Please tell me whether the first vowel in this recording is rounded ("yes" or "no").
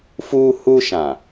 yes